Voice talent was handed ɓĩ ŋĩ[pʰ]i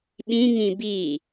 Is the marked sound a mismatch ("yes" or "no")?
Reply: yes